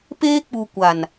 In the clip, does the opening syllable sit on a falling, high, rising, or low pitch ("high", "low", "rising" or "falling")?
high